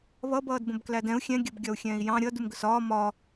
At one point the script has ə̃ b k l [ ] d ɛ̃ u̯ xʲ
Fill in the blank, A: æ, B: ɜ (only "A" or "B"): A